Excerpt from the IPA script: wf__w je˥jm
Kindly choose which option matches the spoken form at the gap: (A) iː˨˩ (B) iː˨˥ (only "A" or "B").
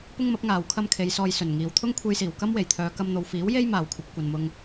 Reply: B